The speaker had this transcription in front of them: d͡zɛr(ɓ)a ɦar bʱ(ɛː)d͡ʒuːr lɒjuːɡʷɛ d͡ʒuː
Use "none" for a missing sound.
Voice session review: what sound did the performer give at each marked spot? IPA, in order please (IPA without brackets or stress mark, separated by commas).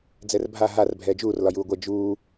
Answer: bʱ, ɛː